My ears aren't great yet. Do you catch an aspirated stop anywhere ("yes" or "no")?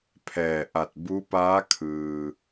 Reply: yes